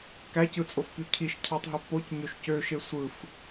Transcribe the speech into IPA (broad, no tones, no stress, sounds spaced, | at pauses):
k æ c ɯ t͡sʼ o f p y cʰ i ʃ cʰ ɑ tˤ ɦ ø p o c ɲ ø ʃ c ø ʃ e sʷ ɯ f